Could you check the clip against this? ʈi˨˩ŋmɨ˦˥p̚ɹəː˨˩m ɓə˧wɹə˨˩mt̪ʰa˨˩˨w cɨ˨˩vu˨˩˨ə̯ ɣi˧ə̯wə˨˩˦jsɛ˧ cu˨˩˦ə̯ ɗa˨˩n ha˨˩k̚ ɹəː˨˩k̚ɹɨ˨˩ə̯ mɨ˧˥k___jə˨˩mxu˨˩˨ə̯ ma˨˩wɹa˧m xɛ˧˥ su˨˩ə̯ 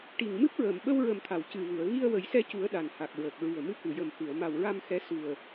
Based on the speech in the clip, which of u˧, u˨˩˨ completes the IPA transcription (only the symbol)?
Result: u˨˩˨